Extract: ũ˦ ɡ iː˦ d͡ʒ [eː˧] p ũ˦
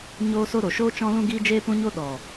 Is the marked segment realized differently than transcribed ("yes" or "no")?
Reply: yes